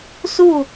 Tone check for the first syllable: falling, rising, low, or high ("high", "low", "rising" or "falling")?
falling